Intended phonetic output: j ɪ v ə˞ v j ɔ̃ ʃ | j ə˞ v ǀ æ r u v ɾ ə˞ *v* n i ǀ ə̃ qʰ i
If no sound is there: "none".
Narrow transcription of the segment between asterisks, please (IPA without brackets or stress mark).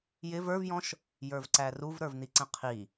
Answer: v